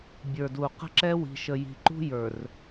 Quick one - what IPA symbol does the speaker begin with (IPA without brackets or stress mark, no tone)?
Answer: bʲ